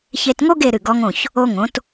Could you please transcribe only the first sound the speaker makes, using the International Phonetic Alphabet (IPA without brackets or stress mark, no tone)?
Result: ç